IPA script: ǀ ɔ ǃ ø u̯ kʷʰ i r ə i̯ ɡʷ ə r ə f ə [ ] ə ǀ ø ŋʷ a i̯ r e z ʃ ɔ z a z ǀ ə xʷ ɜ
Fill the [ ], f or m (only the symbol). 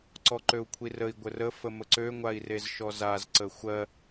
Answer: m